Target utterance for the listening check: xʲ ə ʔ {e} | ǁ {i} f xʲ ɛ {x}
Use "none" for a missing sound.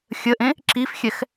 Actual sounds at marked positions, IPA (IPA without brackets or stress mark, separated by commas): ẽ, i, x